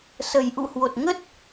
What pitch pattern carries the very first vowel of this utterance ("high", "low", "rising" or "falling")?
low